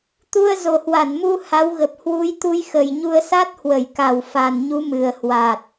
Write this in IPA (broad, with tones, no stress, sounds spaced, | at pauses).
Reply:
t̪ u˧ ə̯ z o˨˩ h w a˧˩ n m u˧ h a˨˦ w ɣ ə˨˩ p̚ h w u˨˦ j t̪ u˧ j x ə˨˩ j ɲ u˧ ə̯ s a˦˥ t̚ h w ə˧˩ j k a˨˩ w f a˨˩ n ɲ u˨˦ m ɨ˨˩ ə̯ h w a˨˩ t̚